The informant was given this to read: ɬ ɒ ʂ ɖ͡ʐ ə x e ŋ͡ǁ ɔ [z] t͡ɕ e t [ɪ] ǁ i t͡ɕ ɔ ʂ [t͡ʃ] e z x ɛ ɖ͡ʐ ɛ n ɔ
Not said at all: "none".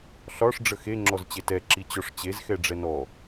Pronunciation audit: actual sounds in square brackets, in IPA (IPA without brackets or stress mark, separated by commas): z, ɛ, t͡ɕ